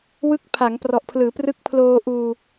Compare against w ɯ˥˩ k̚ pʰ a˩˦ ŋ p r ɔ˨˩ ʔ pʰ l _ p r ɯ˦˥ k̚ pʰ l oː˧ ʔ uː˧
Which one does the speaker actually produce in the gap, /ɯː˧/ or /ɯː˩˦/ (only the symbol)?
ɯː˩˦